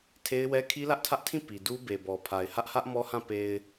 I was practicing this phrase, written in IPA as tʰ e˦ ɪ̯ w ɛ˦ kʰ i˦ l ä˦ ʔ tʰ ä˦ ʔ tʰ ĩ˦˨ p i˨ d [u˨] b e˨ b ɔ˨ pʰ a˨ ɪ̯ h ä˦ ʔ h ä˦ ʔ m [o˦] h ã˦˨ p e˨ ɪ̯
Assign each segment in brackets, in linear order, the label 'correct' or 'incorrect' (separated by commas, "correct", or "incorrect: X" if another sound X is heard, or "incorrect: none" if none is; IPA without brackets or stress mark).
incorrect: u˦, incorrect: ɔ˦